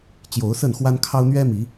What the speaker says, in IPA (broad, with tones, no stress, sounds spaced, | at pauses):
t͡ɕ j o˨˦ ʊ̯ s ə˥˨ n x w a˦ n kʰ ɑ˦ ʊ̯ n̪ ɥ ɛ˦ m i˨˦